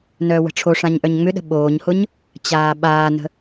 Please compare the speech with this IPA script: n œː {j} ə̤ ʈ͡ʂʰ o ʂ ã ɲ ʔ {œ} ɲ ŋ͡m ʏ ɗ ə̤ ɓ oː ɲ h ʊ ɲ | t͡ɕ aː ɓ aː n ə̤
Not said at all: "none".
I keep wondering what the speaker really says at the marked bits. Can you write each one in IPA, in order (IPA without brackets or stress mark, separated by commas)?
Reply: w, œ